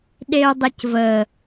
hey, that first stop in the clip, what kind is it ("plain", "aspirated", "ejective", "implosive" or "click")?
implosive